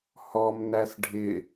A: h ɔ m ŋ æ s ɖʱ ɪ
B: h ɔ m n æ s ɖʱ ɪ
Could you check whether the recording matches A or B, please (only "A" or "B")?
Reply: B